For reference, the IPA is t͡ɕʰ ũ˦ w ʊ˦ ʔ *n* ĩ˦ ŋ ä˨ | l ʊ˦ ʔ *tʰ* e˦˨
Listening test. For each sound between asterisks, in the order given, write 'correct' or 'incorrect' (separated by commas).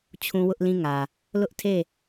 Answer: incorrect, correct